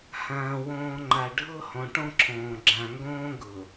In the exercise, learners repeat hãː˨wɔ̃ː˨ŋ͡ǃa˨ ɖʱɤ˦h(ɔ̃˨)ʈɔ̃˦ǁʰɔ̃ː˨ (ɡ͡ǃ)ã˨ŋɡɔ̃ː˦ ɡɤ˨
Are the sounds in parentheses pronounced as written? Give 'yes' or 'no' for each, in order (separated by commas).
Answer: yes, no